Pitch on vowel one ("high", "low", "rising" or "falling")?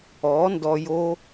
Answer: rising